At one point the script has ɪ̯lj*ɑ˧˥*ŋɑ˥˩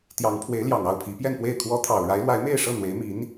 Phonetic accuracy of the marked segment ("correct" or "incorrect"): incorrect